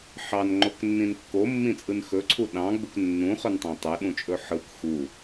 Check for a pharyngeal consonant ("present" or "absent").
present